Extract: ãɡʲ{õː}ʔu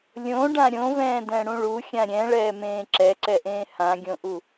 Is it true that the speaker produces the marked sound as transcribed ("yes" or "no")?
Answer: no